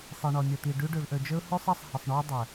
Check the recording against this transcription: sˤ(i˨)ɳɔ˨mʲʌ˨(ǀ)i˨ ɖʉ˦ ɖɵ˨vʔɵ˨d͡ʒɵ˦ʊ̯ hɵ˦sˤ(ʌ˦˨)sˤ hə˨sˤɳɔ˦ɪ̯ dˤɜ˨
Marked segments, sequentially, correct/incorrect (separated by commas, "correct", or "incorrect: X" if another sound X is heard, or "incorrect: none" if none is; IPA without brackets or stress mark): correct, incorrect: t̪, correct